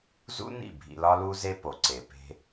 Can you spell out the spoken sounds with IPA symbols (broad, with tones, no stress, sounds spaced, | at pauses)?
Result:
z ṵ˦ n ḭ˦˨ bʱ ḭ˧ l ɒ˦ l u˦ z e˦ p o˨ ǀ e˨ p e̤˧